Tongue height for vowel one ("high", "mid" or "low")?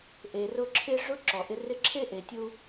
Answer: mid